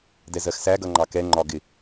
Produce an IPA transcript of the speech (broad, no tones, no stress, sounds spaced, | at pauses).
d ɛ z ɜ x s æ ɡ ʌ ŋ͡ǃ ɑ k ɛ ŋ͡ǃ ɒ ɡ ɪ